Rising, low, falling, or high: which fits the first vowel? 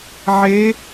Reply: rising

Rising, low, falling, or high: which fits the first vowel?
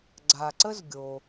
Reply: low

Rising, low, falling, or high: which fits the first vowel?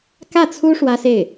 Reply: falling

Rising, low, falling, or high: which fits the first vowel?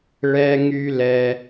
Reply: high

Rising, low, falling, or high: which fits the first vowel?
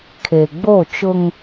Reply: low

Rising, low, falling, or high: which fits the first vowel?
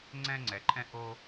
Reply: high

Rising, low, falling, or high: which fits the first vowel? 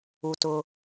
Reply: low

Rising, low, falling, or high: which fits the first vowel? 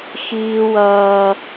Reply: high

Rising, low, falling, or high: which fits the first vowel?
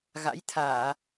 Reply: rising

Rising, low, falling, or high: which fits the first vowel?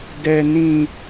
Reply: low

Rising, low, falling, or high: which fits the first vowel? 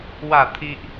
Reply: falling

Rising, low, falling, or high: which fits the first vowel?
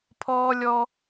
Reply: high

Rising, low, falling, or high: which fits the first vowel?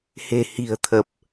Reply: low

